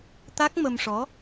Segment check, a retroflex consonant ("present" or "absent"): present